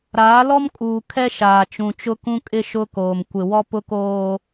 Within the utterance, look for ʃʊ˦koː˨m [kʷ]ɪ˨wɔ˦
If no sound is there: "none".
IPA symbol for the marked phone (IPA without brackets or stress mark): kʷ